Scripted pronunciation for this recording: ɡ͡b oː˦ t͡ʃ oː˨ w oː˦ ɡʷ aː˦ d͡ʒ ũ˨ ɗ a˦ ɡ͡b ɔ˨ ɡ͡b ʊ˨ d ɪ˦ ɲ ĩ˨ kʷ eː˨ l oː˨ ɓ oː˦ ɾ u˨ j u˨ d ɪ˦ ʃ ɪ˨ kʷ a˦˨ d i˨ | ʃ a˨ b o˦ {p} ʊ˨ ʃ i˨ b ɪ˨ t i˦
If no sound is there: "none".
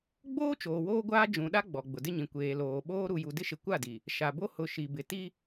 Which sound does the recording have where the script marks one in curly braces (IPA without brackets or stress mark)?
h